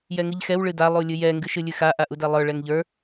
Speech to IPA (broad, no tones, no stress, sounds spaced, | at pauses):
j ɛ ŋ ɨ ʎ x ɛ w ɭ ɨ d a lˠ u lʲ ɨ j ɛ ŋ ɡ ɨ ʃ ɨ lʲ ɨ x a ʔ a ʔ u d ɛ lˠ ə˞ ɭ ɛ ŋ ʎ ə˞